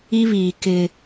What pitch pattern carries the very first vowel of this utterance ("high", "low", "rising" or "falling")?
high